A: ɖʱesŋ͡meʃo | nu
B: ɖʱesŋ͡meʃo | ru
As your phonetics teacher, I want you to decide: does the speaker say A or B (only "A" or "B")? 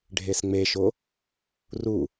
B